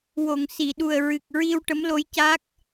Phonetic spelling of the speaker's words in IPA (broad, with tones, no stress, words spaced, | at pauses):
wo˨˩˨ŋ si˨˩˨ɗu˨˩ə̯ɹɨ˨˩k̚ ɹi˧w ʈə˧˥mlo˧˥j ca˦˥k̚